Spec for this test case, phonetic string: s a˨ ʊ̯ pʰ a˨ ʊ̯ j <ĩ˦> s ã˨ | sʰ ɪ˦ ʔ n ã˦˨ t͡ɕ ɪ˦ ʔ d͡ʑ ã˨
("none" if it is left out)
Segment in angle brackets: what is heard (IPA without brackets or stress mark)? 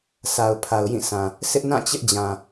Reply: ĩ˦˨